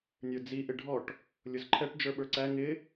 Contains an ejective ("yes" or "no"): no